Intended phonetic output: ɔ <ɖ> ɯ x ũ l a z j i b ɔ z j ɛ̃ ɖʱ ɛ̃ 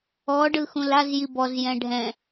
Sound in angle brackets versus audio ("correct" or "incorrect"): correct